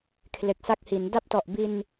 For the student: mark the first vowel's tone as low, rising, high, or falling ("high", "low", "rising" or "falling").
low